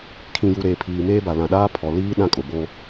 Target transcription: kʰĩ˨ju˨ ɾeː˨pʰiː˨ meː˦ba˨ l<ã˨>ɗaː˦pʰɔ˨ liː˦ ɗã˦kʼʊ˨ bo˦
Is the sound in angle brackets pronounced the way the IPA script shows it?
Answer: yes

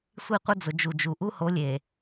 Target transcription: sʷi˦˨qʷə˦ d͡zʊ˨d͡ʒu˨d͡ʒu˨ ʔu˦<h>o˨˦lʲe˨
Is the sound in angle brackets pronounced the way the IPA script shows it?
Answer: yes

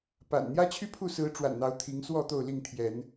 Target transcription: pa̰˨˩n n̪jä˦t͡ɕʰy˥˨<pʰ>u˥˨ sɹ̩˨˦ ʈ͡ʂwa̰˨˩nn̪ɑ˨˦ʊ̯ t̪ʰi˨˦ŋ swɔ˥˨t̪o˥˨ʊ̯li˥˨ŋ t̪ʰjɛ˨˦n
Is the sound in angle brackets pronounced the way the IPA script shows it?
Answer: yes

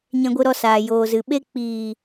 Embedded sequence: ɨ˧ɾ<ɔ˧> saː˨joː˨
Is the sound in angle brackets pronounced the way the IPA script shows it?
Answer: yes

